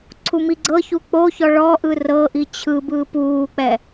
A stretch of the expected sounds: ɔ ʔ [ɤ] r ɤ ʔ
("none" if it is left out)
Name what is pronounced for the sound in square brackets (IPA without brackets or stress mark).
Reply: ɯ